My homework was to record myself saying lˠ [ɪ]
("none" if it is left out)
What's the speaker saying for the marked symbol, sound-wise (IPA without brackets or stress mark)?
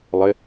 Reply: ɪ